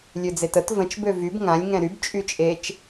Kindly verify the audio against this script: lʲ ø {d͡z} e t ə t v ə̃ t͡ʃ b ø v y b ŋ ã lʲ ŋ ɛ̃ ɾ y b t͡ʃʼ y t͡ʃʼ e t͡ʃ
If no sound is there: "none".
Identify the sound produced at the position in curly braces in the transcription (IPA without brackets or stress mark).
d͡z